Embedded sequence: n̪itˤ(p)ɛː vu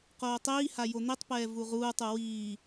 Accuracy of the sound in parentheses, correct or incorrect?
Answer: correct